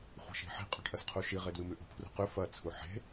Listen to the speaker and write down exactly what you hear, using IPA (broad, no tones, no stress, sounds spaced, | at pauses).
χʷ e̤ ʃ i̤ ħ i̤ qʼ ʉ ʈ ʔ ɐ s qʰ u ʃ i ʁ e d w ɨ m ʉ ʔ ṳ pʰ r ṳ q ʉ f ɐ t͡sʰ u ħ e̤